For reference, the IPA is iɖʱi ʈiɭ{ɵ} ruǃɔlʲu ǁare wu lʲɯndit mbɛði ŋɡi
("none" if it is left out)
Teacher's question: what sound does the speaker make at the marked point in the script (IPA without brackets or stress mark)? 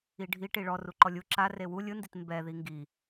ɔ